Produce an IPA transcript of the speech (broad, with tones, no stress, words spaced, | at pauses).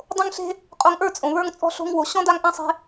dˤõ˦ŋɬe̤˦ | qʼo˧ŋʔə˞˦˨t͡sʼõ˨ βə˞˧ŋt͡sʼɔ̤˧ɬo̤˧ŋwo˨ ɕɔ̃˦da˦ŋʔã˦ sˤe̤˦